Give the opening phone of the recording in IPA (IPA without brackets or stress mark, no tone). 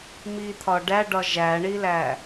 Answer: m